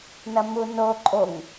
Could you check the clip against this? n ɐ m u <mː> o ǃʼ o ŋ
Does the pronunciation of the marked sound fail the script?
yes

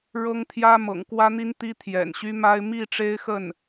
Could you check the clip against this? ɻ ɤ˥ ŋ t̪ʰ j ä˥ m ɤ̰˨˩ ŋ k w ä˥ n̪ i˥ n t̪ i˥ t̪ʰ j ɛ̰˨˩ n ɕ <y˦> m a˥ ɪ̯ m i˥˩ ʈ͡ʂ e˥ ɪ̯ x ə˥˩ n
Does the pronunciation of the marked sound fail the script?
yes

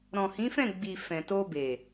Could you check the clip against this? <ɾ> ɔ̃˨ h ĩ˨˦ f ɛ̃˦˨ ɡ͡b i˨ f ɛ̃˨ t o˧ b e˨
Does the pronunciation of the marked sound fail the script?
no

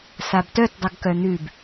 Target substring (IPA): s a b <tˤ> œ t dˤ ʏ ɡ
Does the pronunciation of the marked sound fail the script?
yes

